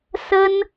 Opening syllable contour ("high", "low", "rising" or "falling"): high